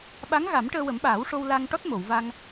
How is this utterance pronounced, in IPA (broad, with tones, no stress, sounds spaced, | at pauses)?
ɓ a˧˥ ŋ ɣ a˨˩˦ m ʈ əː˧ w ə˨˩˦ m ɓ aː˨˩˦ w ʂ o˧ w l a˧ ŋ ʈ ɔ˦˥ t̚ m o˨˩˨ w v a˧ ŋ